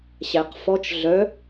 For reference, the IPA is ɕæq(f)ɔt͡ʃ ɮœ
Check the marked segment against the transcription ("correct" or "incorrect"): correct